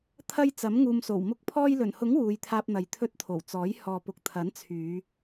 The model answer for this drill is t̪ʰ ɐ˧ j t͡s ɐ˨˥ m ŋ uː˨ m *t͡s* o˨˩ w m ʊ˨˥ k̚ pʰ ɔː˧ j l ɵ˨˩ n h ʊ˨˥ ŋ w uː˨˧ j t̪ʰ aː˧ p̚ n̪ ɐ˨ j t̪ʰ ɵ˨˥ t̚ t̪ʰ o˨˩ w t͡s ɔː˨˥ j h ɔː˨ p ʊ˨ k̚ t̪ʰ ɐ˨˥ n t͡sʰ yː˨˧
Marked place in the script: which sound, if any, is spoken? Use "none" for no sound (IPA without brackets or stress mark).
s